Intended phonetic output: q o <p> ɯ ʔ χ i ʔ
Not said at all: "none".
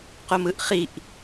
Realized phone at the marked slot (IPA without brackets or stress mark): m